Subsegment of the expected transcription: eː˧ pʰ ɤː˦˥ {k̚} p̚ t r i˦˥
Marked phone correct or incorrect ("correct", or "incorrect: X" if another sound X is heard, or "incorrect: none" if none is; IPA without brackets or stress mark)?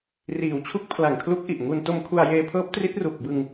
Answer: incorrect: none